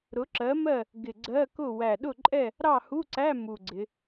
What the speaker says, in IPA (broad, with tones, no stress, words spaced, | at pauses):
ɾʊ˨˥ǁɜ˨˥mɜ˥˨ | ɡɪ˨˩ɡ͡ǀɜ˧˥˧kʊ˥˨ wæ˨˩ɗʊ˥˨ǃʼɛ˥˨ | ɾɑ˥˨hu˧˥˧ǀæ˧˥˧ mu˨˩ɡ͡ǀɪ˩˧